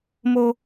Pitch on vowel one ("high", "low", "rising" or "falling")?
high